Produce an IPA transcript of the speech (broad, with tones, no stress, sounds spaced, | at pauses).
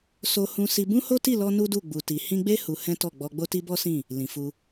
s o˧ h ũ˧ s i˧ b ũ˦ h o˦ t i˦˨ l ɔ˧ n u˦ d u˦˨ ɡ͡b u˨ t i˨ h ĩ˧ ɡ͡b e˦ h u˧ h ɛ̃˦ t ɔ˦˨ ɡ͡b ɔ˧ ɡ͡b o˦ t i˦ b ɔ˦ s ĩ˦˨ | l ĩ˨ f u˧